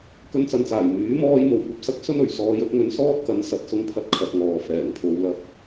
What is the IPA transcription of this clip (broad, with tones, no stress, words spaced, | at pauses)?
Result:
kɵ˧nt͡sɐ˨nt͡saː˨˩j myː˨˥mɔː˧j mo˨˩wkʷɐ˨p̚sɐ˧k̚ sɵ˥nɵ˨˩ɥsɔː˧j ɵ˧t̚ŋɵ˨˧nsɔː˥t̚kɐ˨˥n sɐ˨˥t̚ sʊ˧ŋpʰɐ˧t̚ kʰɐ˨t̚ŋɔː˨ fɛː˨˩ŋpʰo˨˧wlɐ˧p̚